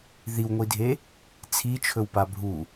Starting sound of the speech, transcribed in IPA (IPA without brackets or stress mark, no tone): ð